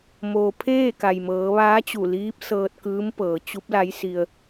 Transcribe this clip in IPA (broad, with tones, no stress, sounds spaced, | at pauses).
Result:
m oː˩ pʰ eː˥˨ k a˩ j m ɤː˩˧ ʋ aː˧˥ t͡ɕ u˧˩ l iː˧˥ p̚ s ɤː˧ t̚ k ɯː˧˥ m p ɤː˩˧ t͡ɕ u˧˥ p̚ l a˧˥ j s i˧ ə̯